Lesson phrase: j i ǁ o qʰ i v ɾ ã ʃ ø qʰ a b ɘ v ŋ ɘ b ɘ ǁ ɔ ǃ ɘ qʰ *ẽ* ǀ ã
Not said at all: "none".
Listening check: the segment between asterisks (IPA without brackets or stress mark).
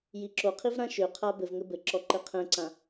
ɛ̃